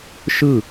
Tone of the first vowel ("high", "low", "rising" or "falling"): falling